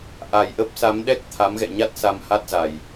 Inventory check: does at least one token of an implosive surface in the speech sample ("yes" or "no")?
yes